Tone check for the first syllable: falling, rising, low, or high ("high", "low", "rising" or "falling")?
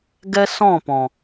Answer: high